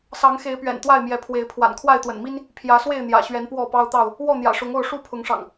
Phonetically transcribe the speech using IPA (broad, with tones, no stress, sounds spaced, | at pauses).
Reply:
s ɑ˨˦ ŋ x e˨˦ ɪ̯ p ɥ ɛ̰˨˩ n t̪ w a˥˨ ɪ̯ m j ɛ˨˦ pʰ w e˨˦ ɪ̯ pʰ w a̰˨˩ n kʰ w a˥˨ ɪ̯ t̪ w ə̰˨˩ n m i˦ n | pʰ j ä˨˦ s w e˥˨ ɪ̯ n̪ j ä̰˨˩ ɕ ɥ ɛ˨˦ n p w ɔ˥˨ p ɑ˦ ʊ̯ t̪ ɑ˥˨ ʊ̯ | w ɔ˥˨ n̪ j ä̰˨˩ ʂ ʊ˨˦ ŋ o˥˨ ʊ̯ ʂ u˦ pʰ ʊ˨˦ ŋ ʂ ɑ̰˨˩ ŋ